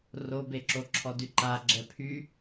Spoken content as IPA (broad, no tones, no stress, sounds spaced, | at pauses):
r o b e ǁ o ǁʰ ɔ d y ǃ a ɡ͡ǁ ɛ pʰ y